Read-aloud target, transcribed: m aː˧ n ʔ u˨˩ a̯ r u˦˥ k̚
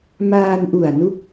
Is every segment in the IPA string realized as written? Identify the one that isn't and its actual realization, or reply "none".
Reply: r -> n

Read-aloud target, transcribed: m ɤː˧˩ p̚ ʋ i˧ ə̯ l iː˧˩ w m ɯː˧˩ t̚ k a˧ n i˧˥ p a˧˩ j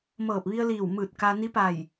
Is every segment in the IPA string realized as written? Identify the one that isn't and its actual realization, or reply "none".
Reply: none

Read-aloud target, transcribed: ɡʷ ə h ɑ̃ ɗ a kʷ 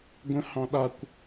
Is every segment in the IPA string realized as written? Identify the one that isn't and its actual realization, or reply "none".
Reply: ə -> ə̃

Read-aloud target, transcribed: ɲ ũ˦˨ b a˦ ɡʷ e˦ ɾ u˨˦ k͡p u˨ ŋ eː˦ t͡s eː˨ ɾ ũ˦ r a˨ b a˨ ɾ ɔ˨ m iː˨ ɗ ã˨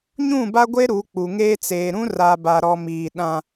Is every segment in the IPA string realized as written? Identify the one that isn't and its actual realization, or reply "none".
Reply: none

